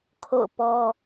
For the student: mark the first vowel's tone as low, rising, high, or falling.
falling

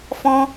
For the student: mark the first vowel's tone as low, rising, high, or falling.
high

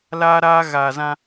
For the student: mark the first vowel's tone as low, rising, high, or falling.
high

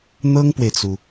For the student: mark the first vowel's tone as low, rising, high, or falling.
high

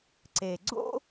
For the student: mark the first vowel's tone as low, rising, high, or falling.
low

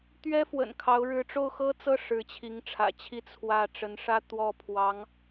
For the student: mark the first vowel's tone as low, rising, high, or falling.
high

